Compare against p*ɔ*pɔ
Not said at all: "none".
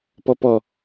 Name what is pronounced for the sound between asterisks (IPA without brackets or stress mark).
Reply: ɔ